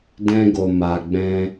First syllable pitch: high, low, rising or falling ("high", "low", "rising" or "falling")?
high